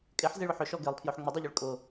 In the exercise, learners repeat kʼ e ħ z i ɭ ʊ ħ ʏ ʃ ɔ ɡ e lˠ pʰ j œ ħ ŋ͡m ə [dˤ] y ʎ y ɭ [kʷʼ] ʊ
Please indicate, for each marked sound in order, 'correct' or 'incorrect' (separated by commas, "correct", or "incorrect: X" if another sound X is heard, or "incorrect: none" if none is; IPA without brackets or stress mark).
correct, incorrect: kʼ